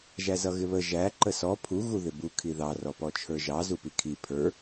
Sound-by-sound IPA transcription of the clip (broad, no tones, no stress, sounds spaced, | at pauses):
ʒ æ z ʌ ɣ ɪ β ə ʒ æ ǃ ə s ɔ pʰ u ɣ u ð ɪ b u kʰ i ð ɑ r ɔ p ɔ t͡ʃʰ ə˞ ʒ ɑ z u p i kʰ i pʰ ə˞